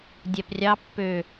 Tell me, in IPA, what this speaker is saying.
dʲ æ p rʲ ɑ pː ø

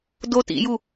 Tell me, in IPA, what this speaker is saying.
d o t ḭ j u

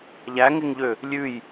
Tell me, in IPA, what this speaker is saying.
ʎ æ ŋ e ŋ ʎ ø | lʲ ʉ j

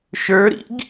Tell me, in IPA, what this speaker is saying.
ʃ ə˞ ɾ ḭ ɡ

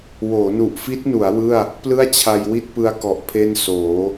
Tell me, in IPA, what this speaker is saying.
w oː˩˦ n u˨˩ ʔ f i˦˥ t̚ n u˩˦ a̯ w ɯ˥˩ a̯ | p l ɯ˥˩ a̯ t͡ɕʰ a˧ j w i˥˩ t̚ p ɯ˧ a̯ k ɔ˨˩ ʔ pʰ e˥˩ n s oː˩˦

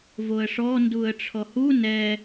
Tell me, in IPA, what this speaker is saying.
v o ə̯ ʂ ɔ n d u ə̯ ʈ͡ʂʰ ɔ h u n ɛ

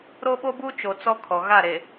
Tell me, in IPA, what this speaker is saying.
ɾ o˦ ɓ o˦ b u˦ t͡ʃ o˨ t͡s ɔ˦ kʰ ɔ˨ ɣ a˦˨ ɾ e˨

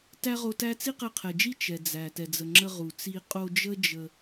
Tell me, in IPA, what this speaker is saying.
t æ˥ ʁ o˧ t æ˥ t͡s i˥ q ɛ˧ qʰ ɛ˩ d͡ʒ i˥ t͡ʃ ɛ˩ d͡z æ˩ t ɛ˩ d͡z ə˩ ŋ͡ǁ ə˧ ʁ u˩ t͡s i˧ qʼ o˧ d͡ʒ ə˥ d͡ʒ ə˧

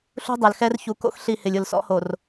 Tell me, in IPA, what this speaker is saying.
ɬ ṳ˦ dˤ ɛ˨ l x ɛ˦ r ç u˨ k o̰˦ x ɬ i˦˨ h ɪ˨ lʲ ʊ˨ l s ɔ̰˦ h o˨ r

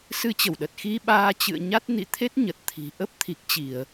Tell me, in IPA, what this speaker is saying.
s ɨ˧ t͡ɕ ə˧˩ w ɗ ə˨˩ t̚ x i˧ ɓ aː˧ t͡ɕ ɨ̰˧˨ ə̯ ɲ a˦˥ t̚ n ḭ˧˨ t̪ʰ e˦˥ t̚ ɲ ə˨˩ t̚ t̪ʰ i̤˨˩ ʔ ə˦˥ p̚ t̪ʰ i˨˩ k̚ t͡ɕ i˧˩˨ ə̯

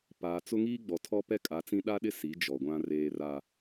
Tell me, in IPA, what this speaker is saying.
p aː˨ t͡s ʊ˦ ŋ iː˦ ɡ͡b ɔ˨ tʰ ɔ˦ p ɛ˦ kʼ a˨˦ t͡s ĩ˦ ɗ a˦ ɗ ɪ˦ s i˨˦ d͡ʒ ɔ˨ ɡʷ ã˦ r eː˦ r a˦

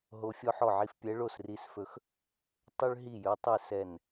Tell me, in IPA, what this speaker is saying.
ɦ o˧˥ fʲ ɔ˥ ħ ɔ˥˩ ʕ i˥ f pʲ ɛ˧˥ ɭ o˥˩ s r i˧˥ s f ɵ˧˥ x | tˤ ɵ˥ ɭ ɦ i˥˩ j ɵ˧˥ tˤ i˥˩ s ɛ˥˩ n

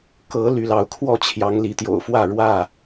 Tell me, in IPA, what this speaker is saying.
k ɤ˨˦ l y˨˦ l ɑ˨˦ ʊ̯ kʰ w ɔ˥˨ t͡ɕʰ j ɑ˨˦ ŋ l i˨˦ t̪ j o̰˨˩ ʊ̯ f w ä˥˨ ɻ w ä˥˨

